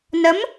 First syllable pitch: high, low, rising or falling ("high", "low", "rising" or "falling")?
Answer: rising